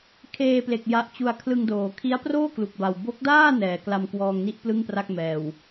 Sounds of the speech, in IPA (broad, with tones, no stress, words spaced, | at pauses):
kʰeː˧ple˨˩k̚ ja˦˥ʔt͡ɕu˧a̯ kʰlɯ˧ŋdoː˩˦ kʰi˦˥a̯proː˥˩ klu˨˩k̚ba˨˩w bo˦˥k̚daː˥˩ nɛː˩˦kla˧mkwɔː˧ŋni˥˩ʔ plɯ˥˩ŋpra˥˩k̚mɛː˨˩w